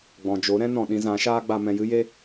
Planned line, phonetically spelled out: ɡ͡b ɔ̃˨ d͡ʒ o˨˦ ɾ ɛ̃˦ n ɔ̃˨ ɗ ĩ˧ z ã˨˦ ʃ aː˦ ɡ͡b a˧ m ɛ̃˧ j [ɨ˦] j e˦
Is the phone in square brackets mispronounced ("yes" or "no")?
no